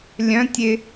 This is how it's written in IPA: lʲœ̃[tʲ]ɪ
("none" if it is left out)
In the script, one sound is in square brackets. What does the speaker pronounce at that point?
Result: tʲ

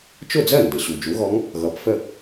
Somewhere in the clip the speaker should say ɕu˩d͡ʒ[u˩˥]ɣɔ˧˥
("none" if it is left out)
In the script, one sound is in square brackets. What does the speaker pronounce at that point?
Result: u˩˥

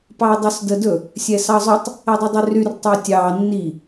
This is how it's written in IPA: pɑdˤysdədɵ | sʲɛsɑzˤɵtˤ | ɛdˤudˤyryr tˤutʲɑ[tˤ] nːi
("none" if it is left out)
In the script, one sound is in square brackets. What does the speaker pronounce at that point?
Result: none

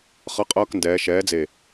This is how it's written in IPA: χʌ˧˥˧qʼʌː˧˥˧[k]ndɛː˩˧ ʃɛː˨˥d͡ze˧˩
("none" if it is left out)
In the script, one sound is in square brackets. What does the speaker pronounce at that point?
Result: k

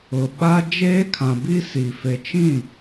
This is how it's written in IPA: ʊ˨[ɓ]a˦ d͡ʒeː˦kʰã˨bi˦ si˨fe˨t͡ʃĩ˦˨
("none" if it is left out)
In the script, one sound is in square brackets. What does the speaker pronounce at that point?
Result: ɓ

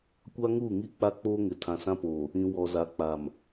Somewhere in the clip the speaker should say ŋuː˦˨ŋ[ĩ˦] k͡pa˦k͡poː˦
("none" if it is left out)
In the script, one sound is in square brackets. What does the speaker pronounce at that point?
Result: i˦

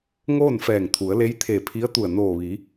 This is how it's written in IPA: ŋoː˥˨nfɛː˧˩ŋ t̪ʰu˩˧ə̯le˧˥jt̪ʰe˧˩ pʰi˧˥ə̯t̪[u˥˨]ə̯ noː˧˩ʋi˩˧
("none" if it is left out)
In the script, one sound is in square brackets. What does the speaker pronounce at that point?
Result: u˧˩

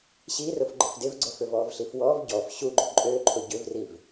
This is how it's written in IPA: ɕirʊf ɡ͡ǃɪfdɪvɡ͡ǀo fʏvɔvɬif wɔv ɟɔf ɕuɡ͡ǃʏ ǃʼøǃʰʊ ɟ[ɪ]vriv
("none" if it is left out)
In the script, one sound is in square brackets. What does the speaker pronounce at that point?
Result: ʏ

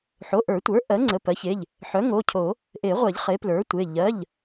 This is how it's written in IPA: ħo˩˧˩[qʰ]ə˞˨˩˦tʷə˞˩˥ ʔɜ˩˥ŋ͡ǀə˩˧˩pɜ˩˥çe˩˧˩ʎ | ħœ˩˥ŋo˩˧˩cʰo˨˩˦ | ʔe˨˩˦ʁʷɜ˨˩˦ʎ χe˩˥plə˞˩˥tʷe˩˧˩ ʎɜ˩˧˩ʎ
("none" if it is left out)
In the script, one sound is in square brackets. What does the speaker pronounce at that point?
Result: ʔ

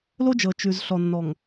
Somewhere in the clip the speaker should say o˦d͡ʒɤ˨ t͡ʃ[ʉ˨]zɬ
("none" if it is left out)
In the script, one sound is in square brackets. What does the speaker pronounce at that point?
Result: ʉ˨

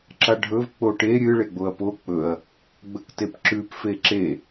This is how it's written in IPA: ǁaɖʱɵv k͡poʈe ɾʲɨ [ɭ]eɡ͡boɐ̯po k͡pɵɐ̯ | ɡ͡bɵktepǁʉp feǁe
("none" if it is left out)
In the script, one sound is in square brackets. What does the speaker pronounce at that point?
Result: ɭ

